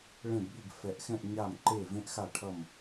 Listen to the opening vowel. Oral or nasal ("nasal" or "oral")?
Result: nasal